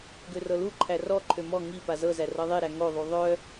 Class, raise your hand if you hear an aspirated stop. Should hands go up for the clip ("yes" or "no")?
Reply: yes